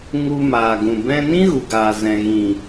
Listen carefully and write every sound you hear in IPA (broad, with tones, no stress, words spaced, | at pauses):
ŋu˧maː˨ɡũ˨ bɛ̃˧nĩ˦ ɣu˨ɡaː˨zɛ̃˨ ɣĩ˨